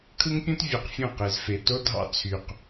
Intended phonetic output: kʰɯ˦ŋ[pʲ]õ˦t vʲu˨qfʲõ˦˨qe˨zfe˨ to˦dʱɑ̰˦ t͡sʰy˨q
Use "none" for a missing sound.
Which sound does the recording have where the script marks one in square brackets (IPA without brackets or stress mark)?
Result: pʲ